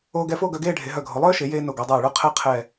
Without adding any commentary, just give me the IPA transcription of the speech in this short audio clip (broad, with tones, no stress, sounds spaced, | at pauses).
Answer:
oː˧ ɡ ɛ˧ f o˥˧ ɡ œ˧ ɡ eː˥˧ ɖʱ e˩˧ ɦ œ˧˩ ɡʱ o˩˧ lˠ œː˥ ʃ e˩˧ j eː˧ n o˧˩ ɡ o˩˧ dˤ eː˧˩ ɭ œ˥˧ qʰ ɛ˥˧ qʰ ɛ˧˩